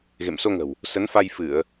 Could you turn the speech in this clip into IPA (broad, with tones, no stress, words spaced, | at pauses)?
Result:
ɣḛ˧˨mso˧ŋə̤˨˩w | sə˨˦nfa˧j fɨ˧˩˨ə̯